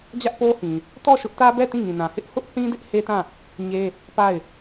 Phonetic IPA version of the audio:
d͡ʑä˦ʔpo˦hĩ˨ | tɔ˦˨ʃʊ˦ʔtä˦bɛ˦˨ tĩ˦˨ŋĩ˨nã˨ hɪ˦ʔhʊ˦ʔθĩ˦ dɪ˦ʔhe˦tã˦˨ | ɲe˦ | pa˦˨ɪ̯

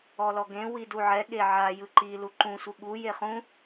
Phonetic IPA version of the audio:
ɔlɔɡẽ widuʕɛ ɠeʕa jɯǃi luǃũ sʷɯɠu jeχũ

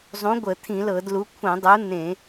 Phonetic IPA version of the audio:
zˤũ˨˥ɡʷə˧˩˧ t̪ʰĩ˧˩˧lɤ˧˩˧dlu˨˥ kʷʰə̃˧˩˧dˤu˨˥n̪ẽ˧˩˧

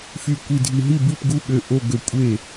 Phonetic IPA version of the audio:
fy˧˩ kʷi˧˩dʱi˧˩ ɦi˥˩bi˥˩p ɡu˥˩ɠø˧˩ ʔo˧˩ ɡø˧˩ kʷʼe˥˩

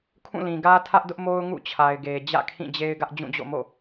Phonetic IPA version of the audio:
kʰũ˦˨lĩ˨ɡä˦ tʰä˦ʔdʊ˦ʔmo˦ʊ̯ ŋṵ˦˨t͡ɕʰa˨ɪ̯ɡe˨ d͡ʑä̰˦˨kʰĩ˦˨d͡ʑe˦ɪ̯ɡä˦ʔ d͡ʑũ˦˨d͡ʑo̰˦˨mo̰˦˨

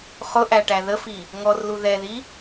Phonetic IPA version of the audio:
χʊ ʔæʈæðəfi | ŋɔrlu ðɛði

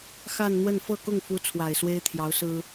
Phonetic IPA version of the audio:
xa˥˧nn̪wə˥˧n fɤ˥˧kʊ˥˩ŋfu˧˥ t͡sʰwa˨˩ɪ̯swe˥ɪ̯t̪ʰjɑ˧˥ʊ̯sɹ̩˥

